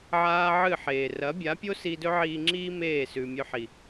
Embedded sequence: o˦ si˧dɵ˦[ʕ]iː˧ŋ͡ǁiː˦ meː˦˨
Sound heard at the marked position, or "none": ʕ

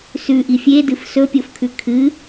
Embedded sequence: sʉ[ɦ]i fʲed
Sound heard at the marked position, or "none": ʔ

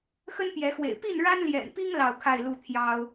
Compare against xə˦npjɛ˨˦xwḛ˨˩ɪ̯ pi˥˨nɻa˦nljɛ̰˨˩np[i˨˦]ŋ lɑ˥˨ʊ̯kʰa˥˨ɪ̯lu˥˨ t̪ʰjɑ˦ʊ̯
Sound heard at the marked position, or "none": i˦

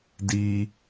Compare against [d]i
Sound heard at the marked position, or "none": d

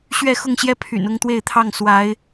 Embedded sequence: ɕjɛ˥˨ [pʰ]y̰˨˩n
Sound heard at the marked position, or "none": pʰ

